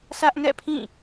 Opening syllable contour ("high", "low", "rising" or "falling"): high